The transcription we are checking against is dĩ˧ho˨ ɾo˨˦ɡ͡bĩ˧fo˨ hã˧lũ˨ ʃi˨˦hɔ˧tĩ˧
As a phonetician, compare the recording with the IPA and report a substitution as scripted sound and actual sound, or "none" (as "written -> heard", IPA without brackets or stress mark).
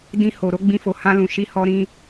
t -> ɾ